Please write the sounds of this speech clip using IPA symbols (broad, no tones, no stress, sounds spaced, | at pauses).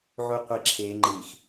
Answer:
ʕ u qʷ i ǁʰ e ŋ͡ǃ i x